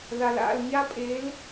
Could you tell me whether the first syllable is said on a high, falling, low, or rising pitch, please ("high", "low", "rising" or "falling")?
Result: low